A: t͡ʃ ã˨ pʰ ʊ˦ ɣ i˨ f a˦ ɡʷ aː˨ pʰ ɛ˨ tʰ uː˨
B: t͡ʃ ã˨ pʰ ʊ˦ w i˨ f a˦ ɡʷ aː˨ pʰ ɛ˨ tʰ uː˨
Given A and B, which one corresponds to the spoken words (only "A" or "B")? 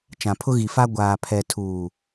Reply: A